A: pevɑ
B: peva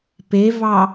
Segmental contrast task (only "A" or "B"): A